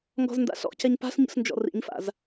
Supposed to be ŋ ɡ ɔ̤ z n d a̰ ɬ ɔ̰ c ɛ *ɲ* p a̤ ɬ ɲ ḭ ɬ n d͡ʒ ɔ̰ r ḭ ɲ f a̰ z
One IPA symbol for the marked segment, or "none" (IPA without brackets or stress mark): ɲ